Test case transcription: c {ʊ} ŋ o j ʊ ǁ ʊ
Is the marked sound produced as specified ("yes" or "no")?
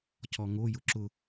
no